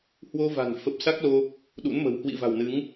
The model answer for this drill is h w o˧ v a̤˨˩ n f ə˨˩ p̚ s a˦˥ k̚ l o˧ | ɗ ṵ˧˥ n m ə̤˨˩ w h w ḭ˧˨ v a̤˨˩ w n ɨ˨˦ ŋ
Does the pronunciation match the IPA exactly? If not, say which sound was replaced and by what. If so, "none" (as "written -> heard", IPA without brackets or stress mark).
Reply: none